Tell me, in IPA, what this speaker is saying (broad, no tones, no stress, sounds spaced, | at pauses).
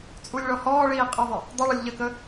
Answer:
t͡sʼ u lʲ ɭ ɔ h ɔː ɭ iː qʼ ɪ ðˤ ɪ | dˤ ɪ ɭ ə lʲ ʎ ə k ə